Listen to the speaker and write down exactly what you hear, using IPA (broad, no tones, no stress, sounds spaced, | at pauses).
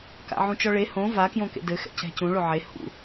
k a̰ ʕ ũ t͡ʃ ɔ ɭ e h õ v a k j õ k ḛ d ɘ x ɛ̰ c ɛ̤ c ũ ɭ o ʕ e h ṵ